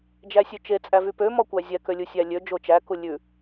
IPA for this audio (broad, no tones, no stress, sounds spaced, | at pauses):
d͡ʒ æ sʲ ʉ t͡ʃ e t͡sʼ æ v y p ø m ɔ kʷ æ zʲ ɛ k ø lʲ u sʲ æ lʲ ø d͡ʒ o t͡ʃ æ k u lʲ ʉ